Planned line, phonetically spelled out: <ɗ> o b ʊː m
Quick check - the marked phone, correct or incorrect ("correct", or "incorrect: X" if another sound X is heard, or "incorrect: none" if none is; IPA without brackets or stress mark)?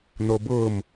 incorrect: n̪